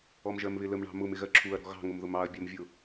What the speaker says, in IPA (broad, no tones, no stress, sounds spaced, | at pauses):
ɔ m ʒ ɜ m β ɪ l ə m ɳ ɑ̤ m ʊ m ɪ ɣ ɜ ǁʰ u ɐ̯ ɾ ɔ̤ ɣ ɑ̤ ŋ ʊ m ð ʊ m ɑ ɐ̯ bʲ ɜ m vʲ ʊ